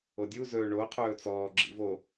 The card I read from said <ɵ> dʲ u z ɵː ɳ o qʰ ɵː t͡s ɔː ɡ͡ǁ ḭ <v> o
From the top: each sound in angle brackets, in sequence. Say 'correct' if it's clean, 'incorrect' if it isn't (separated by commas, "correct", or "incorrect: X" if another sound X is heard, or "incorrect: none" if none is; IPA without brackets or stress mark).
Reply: incorrect: o, correct